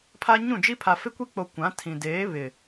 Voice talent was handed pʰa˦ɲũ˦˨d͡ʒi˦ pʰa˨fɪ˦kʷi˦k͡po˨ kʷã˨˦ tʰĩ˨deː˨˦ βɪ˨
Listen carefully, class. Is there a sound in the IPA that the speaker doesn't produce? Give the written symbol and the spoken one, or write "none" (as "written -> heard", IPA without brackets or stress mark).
none